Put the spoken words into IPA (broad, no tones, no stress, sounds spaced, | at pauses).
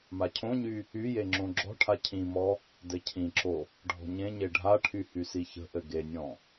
m a cʰ õ ɲ y | y j e ŋ͡ǁ õ ɡ͡ǁ ɔ̤ ʈʰ a cʰ ĩ m ɔ | d ɘ cʰ ĩ ǁ o | ɖʱ ɔ̤ ɲ ẽ ɲ e ɖʱ a ʈʰ y h y s i ç ə̤ ʔ ɘ ɡ e nʲ ɔ̃